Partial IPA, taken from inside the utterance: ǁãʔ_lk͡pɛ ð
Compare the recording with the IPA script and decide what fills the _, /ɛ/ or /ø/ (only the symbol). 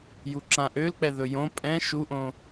ø